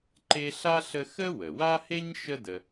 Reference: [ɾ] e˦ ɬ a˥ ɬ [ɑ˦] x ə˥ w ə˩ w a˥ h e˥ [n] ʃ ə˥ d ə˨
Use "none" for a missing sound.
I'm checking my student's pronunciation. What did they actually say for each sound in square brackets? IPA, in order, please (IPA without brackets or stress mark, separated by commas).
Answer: ǃ, ə˦, ɲ